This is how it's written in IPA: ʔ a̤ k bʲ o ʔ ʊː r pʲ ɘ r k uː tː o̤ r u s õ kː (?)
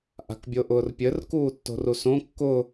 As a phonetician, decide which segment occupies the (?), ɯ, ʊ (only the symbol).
ʊ